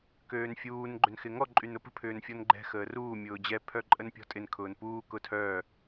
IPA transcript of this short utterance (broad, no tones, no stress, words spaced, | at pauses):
køːnfʲuːn ɡ͡ǃønxɪŋɔ ǃʼynʊpə̤ pʰʏːnfʲɔnɡ͡ǃɛ̤ xəːruː mʲʊːd͡ʑɛ pʰœǃʼənpʲɔ̤ tʼɪn kʰʊːnpuː kʊtʰœː